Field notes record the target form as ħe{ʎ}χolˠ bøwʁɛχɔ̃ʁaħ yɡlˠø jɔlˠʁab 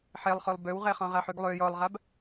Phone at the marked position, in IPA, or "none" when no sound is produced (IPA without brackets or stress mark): lˠ